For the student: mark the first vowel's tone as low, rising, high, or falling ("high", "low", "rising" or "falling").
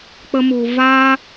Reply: high